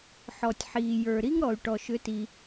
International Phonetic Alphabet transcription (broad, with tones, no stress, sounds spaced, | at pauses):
ħ ɔ˩ tʲ ħ iː˩ j ə˞˩ ɾ i˥ ŋ ɾ ɔ˩ y̯ ʈ ɔ˩ ʃ ʏ˩˥ t i˩